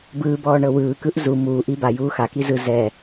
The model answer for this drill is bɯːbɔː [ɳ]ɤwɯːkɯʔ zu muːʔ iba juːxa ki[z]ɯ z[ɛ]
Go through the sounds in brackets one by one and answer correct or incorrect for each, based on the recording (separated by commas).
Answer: correct, correct, correct